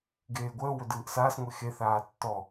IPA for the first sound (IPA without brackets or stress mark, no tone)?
ɡ